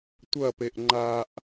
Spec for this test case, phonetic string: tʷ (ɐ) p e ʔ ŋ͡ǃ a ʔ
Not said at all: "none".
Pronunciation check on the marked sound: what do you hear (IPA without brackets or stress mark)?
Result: ɐ